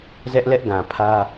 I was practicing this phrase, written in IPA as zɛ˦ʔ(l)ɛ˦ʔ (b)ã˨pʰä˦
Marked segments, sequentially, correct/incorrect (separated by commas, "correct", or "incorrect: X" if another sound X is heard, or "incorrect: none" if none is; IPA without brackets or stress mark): correct, incorrect: ɡ